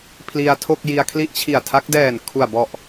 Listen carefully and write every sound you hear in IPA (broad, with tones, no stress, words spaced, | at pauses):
pʰli˧a̯tʰo˥˩k̚ji˧a̯ kʰli˦˥ʔt͡ɕʰi˨˩a̯tʰa˦˥k̚ dɛː˨˩n kʰu˨˩a̯bɔ˨˩ʔ